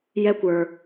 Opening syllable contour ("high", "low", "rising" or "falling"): high